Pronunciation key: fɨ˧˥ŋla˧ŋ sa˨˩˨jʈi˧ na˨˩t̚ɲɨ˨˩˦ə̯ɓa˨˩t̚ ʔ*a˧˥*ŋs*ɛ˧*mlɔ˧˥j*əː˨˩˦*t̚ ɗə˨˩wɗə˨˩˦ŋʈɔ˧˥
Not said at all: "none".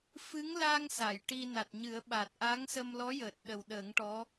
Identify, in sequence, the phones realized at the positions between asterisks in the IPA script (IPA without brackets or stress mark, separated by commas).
a˧˥, ə˧, əː˨˩